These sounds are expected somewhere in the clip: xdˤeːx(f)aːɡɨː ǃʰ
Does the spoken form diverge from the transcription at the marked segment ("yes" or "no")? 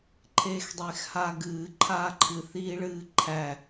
yes